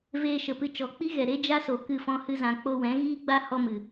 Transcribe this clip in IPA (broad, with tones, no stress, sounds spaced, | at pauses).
v eː˧ ʃ ə˨ p ɨ˧ t͡ʃ ɔ˨˦ k͡p i˦ ɣ ɛ˨ ɾ e˦ d͡ʒ a˦ s o˨ k ɨ˦˨ f ɔ̃˦ h ɨ˦ z ã˧ k͡p o˧ w ɛ̃˨˦ ɣ iː˦ ɡ͡b a˦ h ɔ˦ m ɨ˨